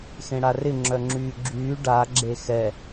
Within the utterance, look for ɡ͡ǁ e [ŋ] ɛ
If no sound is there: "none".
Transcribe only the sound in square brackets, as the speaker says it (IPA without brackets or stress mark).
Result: x